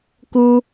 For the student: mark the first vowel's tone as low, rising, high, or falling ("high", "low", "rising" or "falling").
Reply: high